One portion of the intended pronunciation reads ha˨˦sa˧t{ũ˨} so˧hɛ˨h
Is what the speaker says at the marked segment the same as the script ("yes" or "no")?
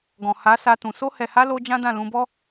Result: yes